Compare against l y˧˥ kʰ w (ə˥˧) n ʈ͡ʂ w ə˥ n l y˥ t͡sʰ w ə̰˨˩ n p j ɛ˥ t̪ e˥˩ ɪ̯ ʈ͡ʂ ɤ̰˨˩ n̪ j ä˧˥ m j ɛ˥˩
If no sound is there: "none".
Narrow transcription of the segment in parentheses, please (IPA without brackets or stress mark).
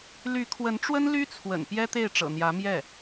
ə˧˥